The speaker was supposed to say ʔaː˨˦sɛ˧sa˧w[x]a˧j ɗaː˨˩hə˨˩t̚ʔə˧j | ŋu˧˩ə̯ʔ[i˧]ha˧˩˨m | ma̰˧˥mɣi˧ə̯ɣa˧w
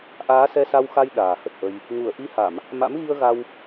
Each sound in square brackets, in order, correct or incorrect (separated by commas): correct, correct